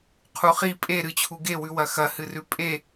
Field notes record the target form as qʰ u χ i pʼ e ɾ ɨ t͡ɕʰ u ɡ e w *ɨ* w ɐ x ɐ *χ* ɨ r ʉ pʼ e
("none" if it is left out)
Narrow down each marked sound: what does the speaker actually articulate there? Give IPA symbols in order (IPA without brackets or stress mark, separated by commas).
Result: ʉ, h